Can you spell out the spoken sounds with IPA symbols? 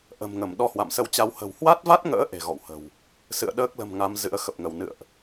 ʔ ə̤˨˩ m ŋ ə˧˩ m ɗ ɔ˧ h w a̰˧˨ m s ə˧ w t͡ɕ a˧ w h ə̤˨˩ w h w a˦˥ t̚ v a˦˥ t̚ ŋ ə̰ː˧˥ ʔ e̤˨˩ ɣ ɔ̰˧˨ w h ə̤˨˩ w | s ɨ̰˧˨ ə̯ ɗ əː˦˥ k̚ l ə̤˨˩ m ŋ a˨˦ m z ɨ̰˧˥ ə̯ x ə˨˩ p̚ ŋ ə˧˩ w n ɨ̰˧˨ ə̯ ʔ

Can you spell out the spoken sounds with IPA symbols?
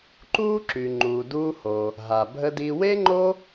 ǃ uː˥ ǁ y˩ ŋ͡ǃ uː˩ d uː˧ h oː˩ | ɦ a˩ bʱ ə˧ d i˧ w e˥ ŋ͡ǃ o˥

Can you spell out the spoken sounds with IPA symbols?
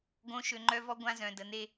ɡ õ˨˦ ʃ ø˨ ŋ͡ǃ œ˦ v ɔ˦ ɡʷ ã˦ z œ̃˨ d ə˨ n e˦

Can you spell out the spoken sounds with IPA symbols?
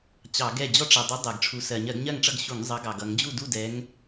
t͡ɕ ɑ˧˩˧ ɡ ɛ˥˨ d͡ʑ ɔ˦ ʈ͡ʂ ɛ˩ dˤ u˨˦ dˤ ɛ˩ ɡ ʈ͡ʂʰ u˨˦ s ɜ˩ ɲ ɜ˧˩˧ ɡ ɲ ɜ˥˨ ŋ ʈ͡ʂ ʌ˥˨ ɡ ɕ u˧˩˧ ŋ zˤ ʌ˨˦ ɡ ɑ˩ ɡ ʌ˧˩˧ ŋ d͡ʑ u˥˨ d u˥˨ d ɛ˨˦ ŋ

